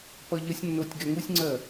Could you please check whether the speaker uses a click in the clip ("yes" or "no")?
yes